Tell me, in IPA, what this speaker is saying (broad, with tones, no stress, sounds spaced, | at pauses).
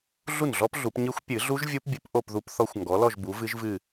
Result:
ɮ u˥˩ n ɮ ɔ˦˥ p ɮ u˨˩˦ p ɲ ɨ˦˥ xʷ pʲ ɨ˨˩˦ ɮ u˦˥ ʒ vʲ u˦˥ p bʲ ɨ˨˥ p ʔ o˥˧ p ð u˦˥ p θ ɔ˦˥ xʷ ŋ ɡ ɔ˨˥ l ɔ˥˧ ʒ b u˨˥ v ɨ˦˥ ʒ v ɨ˥˧